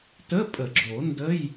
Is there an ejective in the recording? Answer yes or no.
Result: yes